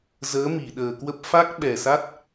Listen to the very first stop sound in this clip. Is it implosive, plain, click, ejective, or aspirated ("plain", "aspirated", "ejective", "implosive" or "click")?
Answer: implosive